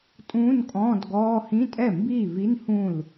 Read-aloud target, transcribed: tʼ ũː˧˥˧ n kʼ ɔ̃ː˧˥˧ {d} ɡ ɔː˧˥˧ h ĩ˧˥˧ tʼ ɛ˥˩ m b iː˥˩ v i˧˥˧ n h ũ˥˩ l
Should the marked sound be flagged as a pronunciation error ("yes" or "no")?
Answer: no